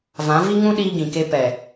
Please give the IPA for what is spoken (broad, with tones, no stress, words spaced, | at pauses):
vã˨˦vi˦ ŋũ˦ɗiː˧ɡĩ˨ke˧ pɛ˨